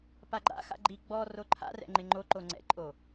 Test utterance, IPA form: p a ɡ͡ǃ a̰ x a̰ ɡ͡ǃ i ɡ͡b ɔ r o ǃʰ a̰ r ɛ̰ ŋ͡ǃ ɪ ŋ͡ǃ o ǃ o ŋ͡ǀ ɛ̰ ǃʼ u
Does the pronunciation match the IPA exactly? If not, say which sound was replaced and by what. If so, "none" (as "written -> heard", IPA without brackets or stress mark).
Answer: u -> o